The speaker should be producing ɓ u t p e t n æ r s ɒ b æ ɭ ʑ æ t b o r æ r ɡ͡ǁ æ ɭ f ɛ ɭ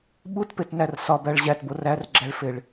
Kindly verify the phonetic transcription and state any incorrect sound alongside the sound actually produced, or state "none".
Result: ɛ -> e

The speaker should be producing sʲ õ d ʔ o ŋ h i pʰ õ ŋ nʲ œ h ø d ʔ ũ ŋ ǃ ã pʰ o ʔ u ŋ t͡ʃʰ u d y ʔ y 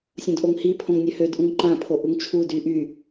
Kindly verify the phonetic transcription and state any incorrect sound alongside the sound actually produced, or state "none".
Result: none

